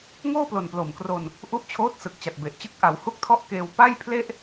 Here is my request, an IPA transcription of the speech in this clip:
ŋ oː˥˩ p l o˨˩ n p l o˨˩ m k r o˧ n | ʔ u˦˥ ʔ t͡ɕʰ oː˦˥ t̚ s ɯ˨˩ k̚ t͡ɕ a˨˩ t̚ b e˨˩ ʔ t͡ɕ ɯ˦˥ k̚ ʔ a˩˦ w h u˥˩ k̚ tʰ ɔ˥˩ ʔ k eː˧ w p a˥˩ j pʰ l e˥˩ ʔ

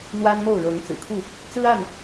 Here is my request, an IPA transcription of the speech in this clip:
n̪ w a˦ n m o˥˨ ʊ̯ ɻ ɤ˨˦ ŋ t͡s ɹ̩˨˩ kʰ u˥˨ | t͡s ɹ̩˦ a˥˨ n

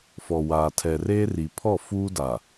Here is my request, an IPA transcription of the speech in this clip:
f ɔ˨ w aː˨ tʰ ɛ˨ r e˦ r i˨ pʰ ɔ˦˨ f uː˦ d a˨

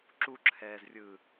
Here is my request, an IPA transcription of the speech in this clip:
ǁ u ǁʰ ɛː z rʲ ɯː

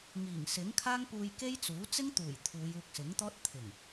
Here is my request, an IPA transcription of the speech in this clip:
ŋ iː˨˩ ŋ s ɪ˨˥ ŋ kʰ aː˥ ŋ p uː˧ j k e˥ j t͡s uː˨˥ t͡s ɪ˥ ŋ t̪ uː˨˩ j t̪ʰ uː˨˧ j uː˧ k̚ s ɪ˨˥ ŋ t̪ ɔː˥ t̚ t̪ʰ ɪ˨˩ ŋ

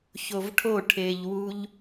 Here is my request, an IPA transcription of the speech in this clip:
ç o v ʈʰ o ʈʰ e ʎ w u ʎ

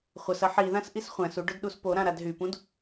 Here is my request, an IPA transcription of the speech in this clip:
χʷ ɐ s ɐ ħ i ð ã s ʔ i s χʷ æ̃ s u ɖ ʊ d ɗ u s p o ɾ ã ɾ a d ɦ y p ũ d

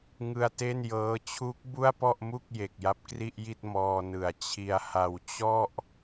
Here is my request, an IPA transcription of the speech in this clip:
ŋ ɯ˧ a̯ t e˥˩ n j ɤː˦˥ t͡ɕʰ u˦˥ k̚ b u˥˩ a̯ p ɔ˥˩ ʔ m u˥˩ k̚ j e˨˩ k̚ j a˦˥ p̚ k r i˥˩ ʔ j i˥˩ t̚ m ɔː˧ n ɯ˨˩ a̯ t͡ɕʰ i˧ a̯ h a˧ w t͡ɕ ɔ˥˩ ʔ

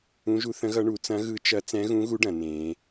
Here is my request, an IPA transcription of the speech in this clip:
ũ˦˥ ʒ u˦˥ θ ə̃˦˥ ɣ ʌ˦˥ ɳ u˨˦ t͡s ɐ̃˦˥ ɣ ɯ˦˥ t͡ʃ ɐ˦˥ t͡s ɛ̃˦˥ ɣ ũ˦˥ ɣ u˦˥ ɖ ɐ̃˨˦ n ẽː˦˥

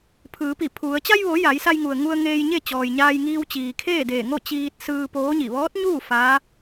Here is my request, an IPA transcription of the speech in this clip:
pʰ ɯː˩˧ p i˧˩ pʰ u˩˧ ə̯ t͡ɕ a˧ j ʋ o˩˧ j a˩˧ j s a˧ j ŋ u˩ ə̯ ŋ u˧ ə̯ ŋ eː˧ j ɲ e˥˨ t͡ɕ ɔː˩ j ɲ aː˧ j ŋ iː˧ w t͡ɕ iː˩ kʰ eː˥˨ d eː˧˩ ŋ o˥˨ t͡ɕ iː˧ t̚ s ɯː˧ p oː˧˥ ɲ i˧˩ ʋ ɔː˧˥ t̚ ɲ uː˥˨ f aː˧˥

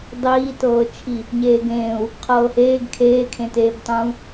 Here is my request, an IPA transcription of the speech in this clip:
dˤ iː t ɤː t͡ʃʰ i | ɲ eː ɡ ẽː u̯ | qʰ ɤː h eː ɡ kʰ eː kʰ ẽ t eː b tˤ ũː

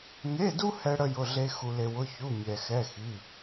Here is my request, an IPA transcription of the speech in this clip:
ŋ e˧˥˧ d u˥ h ɛ˥ ɽ ə˥ j ʊ˧˥˧ ɮ e˥ x u˧ l e˧ w ʊ˧˥˧ ç u˧˥˧ mʲ ɛ˧ x ɛ˧˥˧ x i˧˥˧

